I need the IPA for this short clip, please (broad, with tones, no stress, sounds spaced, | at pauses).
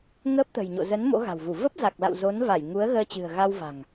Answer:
ŋ əː˦˥ p̚ t̪ ə̤˨˩ j ɲ o̰˧˨ z ə˨˦ n m o̰˧˥ ɣ a̤˨˩ w v u˧˩ v ə˦˥ p̚ z a˨˩ k̚ l a̰˧˨ w z o˨˦ n v a˧˩ j ŋ u˨˦ ə̯ ɣ əː˧ t͡ɕ ɨ̤˨˩ ə̯ ɣ a˧ w v a̤˨˩ ŋ